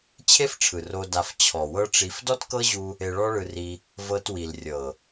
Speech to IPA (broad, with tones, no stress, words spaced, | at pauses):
t͡ɕʰe˦fʈ͡ʂʰɯ˨ ro˧ da˧f t͡ɕʰɔ˨wɤ˦ʈ͡ʂi˧f dɔ˦tkɤ˦ʑu˧ | e˧ɭɔ˦ɭɯ˧ri˧ | vɤ˧twi˨l rʲɤ˨